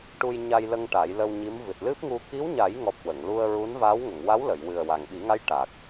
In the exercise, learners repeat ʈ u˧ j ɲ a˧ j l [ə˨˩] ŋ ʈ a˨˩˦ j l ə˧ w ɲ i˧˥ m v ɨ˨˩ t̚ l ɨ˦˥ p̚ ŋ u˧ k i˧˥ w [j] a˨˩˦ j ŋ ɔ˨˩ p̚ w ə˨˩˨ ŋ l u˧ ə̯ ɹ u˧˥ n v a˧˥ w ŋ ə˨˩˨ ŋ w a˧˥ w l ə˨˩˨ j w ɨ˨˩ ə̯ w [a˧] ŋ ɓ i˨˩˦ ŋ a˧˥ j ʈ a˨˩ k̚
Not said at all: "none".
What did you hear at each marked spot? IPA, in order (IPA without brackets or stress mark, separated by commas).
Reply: ə˧, ɲ, a˨˩